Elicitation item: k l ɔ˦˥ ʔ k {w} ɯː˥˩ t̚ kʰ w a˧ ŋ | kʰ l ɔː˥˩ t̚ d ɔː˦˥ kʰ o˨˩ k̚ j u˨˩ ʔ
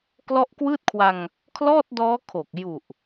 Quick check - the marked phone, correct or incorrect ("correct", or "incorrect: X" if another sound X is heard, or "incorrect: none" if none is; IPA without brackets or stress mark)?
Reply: correct